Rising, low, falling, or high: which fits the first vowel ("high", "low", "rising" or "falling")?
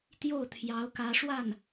falling